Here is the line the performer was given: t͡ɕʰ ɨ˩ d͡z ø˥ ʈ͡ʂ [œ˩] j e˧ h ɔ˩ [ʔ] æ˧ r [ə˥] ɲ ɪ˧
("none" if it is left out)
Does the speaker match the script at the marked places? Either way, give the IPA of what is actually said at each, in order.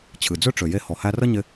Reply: ø˩, h, ə˥

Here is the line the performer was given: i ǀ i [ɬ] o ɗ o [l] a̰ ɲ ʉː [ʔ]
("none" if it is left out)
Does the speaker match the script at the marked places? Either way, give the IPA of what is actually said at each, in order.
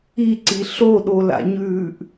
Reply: ɬ, l, ʔ

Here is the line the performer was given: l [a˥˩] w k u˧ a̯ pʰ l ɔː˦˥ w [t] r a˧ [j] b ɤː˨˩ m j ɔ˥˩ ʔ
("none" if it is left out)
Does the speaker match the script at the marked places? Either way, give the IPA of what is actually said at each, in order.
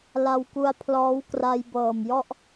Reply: a˧, k, j

